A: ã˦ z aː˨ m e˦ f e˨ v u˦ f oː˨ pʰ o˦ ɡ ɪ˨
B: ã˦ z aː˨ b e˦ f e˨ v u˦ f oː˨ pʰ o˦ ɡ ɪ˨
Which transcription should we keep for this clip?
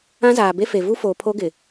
B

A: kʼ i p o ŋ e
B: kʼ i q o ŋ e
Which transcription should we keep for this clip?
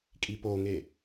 A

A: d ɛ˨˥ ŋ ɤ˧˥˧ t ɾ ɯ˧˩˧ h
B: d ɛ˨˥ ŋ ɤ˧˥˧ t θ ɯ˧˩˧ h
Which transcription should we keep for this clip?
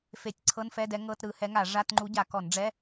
A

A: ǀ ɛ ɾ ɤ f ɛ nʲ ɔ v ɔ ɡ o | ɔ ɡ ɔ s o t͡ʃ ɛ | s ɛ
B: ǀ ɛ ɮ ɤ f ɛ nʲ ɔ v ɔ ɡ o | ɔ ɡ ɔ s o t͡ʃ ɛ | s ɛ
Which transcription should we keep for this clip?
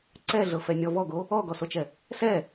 B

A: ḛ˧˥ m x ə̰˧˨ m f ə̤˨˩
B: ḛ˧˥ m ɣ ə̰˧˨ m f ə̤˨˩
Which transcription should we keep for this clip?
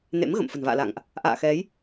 B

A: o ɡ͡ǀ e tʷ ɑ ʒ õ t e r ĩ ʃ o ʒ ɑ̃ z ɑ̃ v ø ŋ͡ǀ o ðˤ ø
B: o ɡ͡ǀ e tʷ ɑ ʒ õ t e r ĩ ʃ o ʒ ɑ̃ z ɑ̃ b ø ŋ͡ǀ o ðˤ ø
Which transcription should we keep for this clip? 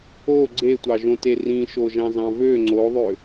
A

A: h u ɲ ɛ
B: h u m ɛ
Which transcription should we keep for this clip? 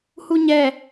A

